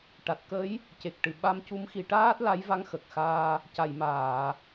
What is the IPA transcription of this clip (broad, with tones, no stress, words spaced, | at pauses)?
ʈa˨˩t̚kə˧˥j | ce˨˩k̚ʈɨ˨˩ ɓa˧mcu˧˥mxi˨˩˦ʈaː˦˥t̚ la˧˥jva˧˥ŋxə˨˩k̚xaː˧ | ca˨˩˨jmaː˨˩˨